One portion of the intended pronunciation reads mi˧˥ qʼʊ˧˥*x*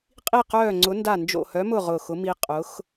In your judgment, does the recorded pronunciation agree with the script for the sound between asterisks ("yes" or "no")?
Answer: yes